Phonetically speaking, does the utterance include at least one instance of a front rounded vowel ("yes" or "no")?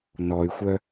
yes